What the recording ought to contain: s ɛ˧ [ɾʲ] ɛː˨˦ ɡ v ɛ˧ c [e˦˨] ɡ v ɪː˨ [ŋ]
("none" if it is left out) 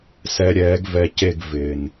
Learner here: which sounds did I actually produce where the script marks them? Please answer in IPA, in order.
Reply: ɾʲ, e˦˨, n

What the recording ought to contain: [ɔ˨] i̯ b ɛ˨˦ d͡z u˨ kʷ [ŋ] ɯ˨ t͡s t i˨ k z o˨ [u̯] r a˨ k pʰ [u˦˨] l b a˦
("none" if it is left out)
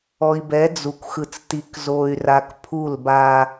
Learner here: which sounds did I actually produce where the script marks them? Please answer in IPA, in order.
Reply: ɔ˨, x, y̯, u˦˨

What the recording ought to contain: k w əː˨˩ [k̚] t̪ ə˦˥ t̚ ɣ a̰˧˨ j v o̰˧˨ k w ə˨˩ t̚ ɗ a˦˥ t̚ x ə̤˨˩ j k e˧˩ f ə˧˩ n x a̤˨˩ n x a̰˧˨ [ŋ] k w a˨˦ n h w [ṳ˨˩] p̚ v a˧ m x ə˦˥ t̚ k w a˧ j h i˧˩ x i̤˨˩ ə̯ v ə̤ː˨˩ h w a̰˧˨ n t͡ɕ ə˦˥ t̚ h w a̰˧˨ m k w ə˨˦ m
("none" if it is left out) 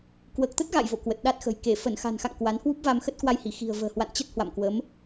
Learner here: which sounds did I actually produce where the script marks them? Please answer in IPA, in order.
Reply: k̚, ŋ, u˦˥

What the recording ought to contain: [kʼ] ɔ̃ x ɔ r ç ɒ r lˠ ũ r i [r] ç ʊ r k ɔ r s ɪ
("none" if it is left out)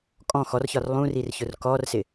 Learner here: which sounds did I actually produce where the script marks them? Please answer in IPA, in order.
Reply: kʼ, r

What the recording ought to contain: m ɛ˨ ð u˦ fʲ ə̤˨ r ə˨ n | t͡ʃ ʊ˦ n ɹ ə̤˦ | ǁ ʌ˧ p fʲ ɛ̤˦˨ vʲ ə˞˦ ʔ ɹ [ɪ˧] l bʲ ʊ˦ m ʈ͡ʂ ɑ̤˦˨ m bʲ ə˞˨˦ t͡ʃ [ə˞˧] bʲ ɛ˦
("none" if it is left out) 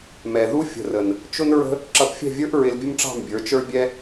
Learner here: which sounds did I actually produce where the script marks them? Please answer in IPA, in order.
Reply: ɪ˧, ə˞˦

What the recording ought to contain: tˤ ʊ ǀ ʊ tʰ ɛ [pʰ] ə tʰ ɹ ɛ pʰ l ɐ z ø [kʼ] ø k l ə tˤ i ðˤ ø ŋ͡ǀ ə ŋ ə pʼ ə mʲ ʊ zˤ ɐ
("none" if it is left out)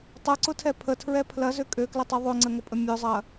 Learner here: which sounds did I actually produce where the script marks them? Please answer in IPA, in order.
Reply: pʰ, kʼ

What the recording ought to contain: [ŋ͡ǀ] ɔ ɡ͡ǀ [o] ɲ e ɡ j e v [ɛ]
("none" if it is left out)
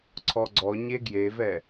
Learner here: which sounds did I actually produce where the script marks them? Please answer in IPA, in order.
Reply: ǀʰ, ɔ, ɛ

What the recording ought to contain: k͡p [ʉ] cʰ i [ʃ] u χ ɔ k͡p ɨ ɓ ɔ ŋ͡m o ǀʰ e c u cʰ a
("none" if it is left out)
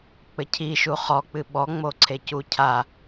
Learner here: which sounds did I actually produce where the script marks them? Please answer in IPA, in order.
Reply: ɘ, ʃ

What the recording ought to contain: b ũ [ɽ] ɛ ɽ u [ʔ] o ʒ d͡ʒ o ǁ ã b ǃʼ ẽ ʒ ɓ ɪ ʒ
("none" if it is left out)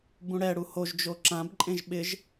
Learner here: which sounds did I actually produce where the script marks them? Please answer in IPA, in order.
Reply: ɽ, h

